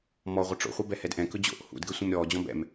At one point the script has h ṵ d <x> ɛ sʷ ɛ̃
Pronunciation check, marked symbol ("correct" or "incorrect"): incorrect